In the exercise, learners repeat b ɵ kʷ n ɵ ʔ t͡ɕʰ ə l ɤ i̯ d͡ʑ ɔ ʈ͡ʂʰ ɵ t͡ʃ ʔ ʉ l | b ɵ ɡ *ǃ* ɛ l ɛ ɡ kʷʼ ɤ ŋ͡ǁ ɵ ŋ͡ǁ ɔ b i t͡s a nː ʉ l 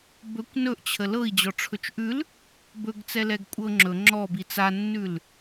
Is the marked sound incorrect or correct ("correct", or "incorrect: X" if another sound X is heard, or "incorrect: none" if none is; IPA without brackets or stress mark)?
incorrect: t͡s